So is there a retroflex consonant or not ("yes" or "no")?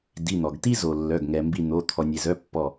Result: no